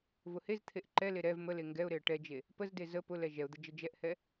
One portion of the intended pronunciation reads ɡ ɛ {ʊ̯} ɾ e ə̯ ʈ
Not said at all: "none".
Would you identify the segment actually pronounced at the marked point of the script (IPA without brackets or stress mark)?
ʊ̯